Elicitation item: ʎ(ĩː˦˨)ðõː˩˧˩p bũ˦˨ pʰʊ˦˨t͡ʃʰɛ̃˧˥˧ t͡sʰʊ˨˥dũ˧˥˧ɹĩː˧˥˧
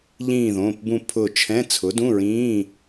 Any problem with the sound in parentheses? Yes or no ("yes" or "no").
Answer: no